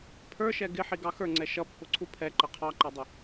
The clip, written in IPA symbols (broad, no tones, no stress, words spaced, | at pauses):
pʰə˞ʃɛ ɡɪħiɡɑ xə˞ŋ͡ǀɛ ʃʌpːʊǀʰu pʰɛǃə qʰɑǃɑdˤə